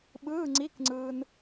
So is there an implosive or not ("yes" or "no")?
yes